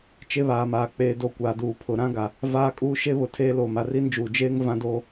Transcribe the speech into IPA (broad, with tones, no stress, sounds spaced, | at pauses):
t͡ʃ e˦ β aː˨ m aː˨ k͡p eː˨ d o˨ kʷ aː˨ d uː˨ pʰ ʊ˨ ɾ ã˦ ɡ a˨ | v aː˦ kʼ uː˦ ʃ e˦ β ʊ˨ tʰ eː˦ l oː˨ m a˨ r i˦ n d͡ʒ uː˨ d͡ʒ eː˦ ŋ v ã˦ d oː˦